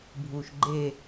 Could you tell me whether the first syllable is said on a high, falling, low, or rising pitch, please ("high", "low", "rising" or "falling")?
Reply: low